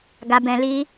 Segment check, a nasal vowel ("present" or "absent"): present